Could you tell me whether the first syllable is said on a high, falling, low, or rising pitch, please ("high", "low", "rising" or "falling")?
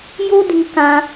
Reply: high